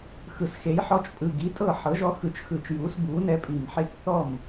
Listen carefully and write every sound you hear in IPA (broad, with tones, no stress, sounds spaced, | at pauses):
x ɯ˨˩ s x e˩˥ j ħ ɔ˦ t͡ʃ pʼ ɯ˨˩ ɡ i˩˥ tʼ ɤ˥˩ ħ ɤ˩˥ ʒ ɔ˦ x ɯ˨˩ t͡ʃ x ɯ˧˩˧ t͡ʃ j uː˩˥ s b uː˩˥ n ɛ˦ pʼ i˨˩ m ħ e˦ k θ ɔ˥˩ m